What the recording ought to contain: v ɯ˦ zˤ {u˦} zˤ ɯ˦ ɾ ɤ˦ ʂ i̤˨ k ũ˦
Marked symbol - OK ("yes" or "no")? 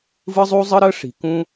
yes